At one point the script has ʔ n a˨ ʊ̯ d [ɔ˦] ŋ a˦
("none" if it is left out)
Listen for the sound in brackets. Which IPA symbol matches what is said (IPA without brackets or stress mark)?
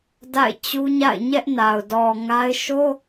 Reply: ɔ˨